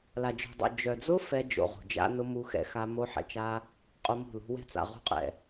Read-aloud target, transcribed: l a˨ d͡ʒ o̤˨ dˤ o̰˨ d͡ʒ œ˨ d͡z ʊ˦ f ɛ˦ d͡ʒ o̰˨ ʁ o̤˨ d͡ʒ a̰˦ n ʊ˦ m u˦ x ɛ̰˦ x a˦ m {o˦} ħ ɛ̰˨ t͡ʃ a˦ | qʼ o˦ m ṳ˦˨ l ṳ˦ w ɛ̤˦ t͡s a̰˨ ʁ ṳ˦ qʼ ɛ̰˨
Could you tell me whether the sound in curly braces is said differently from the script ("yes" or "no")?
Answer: no